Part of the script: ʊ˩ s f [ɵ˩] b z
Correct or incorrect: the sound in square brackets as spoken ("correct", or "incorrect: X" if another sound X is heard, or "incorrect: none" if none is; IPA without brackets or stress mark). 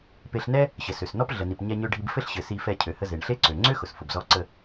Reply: incorrect: ʊ˩